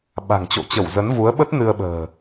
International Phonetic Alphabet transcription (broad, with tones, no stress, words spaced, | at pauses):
ɓa̤˨˩ŋt͡ɕo̰˧˨t͡ɕə˧˩w zə˨˦nvu˨˦ə̯ɓə˦˥t̚ nɨ˧ə̯ɓə̤ː˨˩